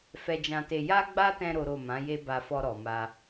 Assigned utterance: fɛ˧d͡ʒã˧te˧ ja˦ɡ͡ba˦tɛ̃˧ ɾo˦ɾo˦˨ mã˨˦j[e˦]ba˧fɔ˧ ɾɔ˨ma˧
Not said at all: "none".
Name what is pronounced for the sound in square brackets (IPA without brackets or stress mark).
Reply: e˦